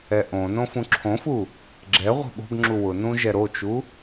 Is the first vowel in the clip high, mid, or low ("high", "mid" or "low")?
mid